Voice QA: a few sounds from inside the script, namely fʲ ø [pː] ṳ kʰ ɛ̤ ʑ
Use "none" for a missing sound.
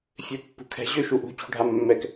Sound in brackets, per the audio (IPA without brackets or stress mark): pː